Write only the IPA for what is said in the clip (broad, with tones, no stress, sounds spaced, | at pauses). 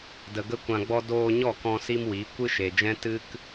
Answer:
d ə˨ ɡ ə˦ kʷ ã˧ ɡ͡b ɔ˦ d oː˧ ɲ ɔ˦˨ k ɔ̃˧ s i˦ m w i˨˦ kʷ ɨ˦ ʃ e˨ d͡ʒ ɛ̃˦ t ɨ˦ k